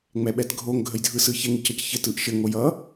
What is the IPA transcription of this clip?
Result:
ŋ͡m ɛ ɓ ɛ t ɡʱ o ŋ ɡʱ ə j dʱ ɯ s ɯ ç ɛ ŋ i c ʌ c ç ɘ t ɯ ʔ ʃ ɘ ŋ o j ʌ

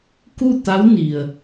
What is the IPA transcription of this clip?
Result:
k u˥˨ t̪ a˧˥ w n i˩ ə̯

